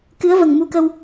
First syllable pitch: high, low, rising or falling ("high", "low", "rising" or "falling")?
rising